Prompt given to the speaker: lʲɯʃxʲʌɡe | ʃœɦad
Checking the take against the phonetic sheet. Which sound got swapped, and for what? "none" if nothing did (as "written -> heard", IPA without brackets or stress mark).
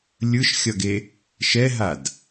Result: œ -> ɛ